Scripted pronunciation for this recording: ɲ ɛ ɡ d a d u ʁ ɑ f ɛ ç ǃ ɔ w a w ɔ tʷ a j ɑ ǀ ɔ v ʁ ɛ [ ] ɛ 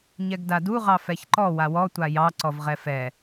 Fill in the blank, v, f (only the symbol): f